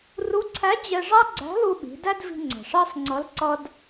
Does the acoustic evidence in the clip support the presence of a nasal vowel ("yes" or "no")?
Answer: no